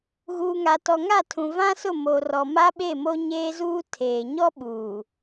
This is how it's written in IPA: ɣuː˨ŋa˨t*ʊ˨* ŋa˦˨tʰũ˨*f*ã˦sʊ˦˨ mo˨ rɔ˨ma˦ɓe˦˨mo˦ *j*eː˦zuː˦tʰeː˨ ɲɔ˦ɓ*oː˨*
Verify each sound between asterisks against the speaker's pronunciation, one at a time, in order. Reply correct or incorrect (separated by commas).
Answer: incorrect, incorrect, incorrect, incorrect